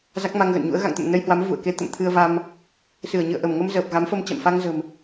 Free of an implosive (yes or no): yes